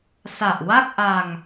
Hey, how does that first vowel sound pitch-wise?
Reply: low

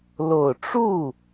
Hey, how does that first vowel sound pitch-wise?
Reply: low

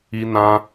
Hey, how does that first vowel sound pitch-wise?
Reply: high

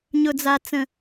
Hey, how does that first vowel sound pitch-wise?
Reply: low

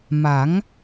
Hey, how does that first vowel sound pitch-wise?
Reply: rising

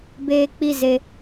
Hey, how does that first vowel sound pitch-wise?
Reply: high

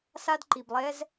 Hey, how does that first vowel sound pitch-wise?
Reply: high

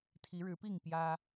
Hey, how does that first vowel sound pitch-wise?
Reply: rising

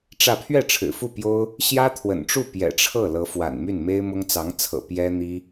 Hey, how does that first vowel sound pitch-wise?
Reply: falling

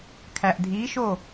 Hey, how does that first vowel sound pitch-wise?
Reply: low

